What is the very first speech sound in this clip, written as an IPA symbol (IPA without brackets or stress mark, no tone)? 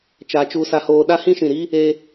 t͡ʃ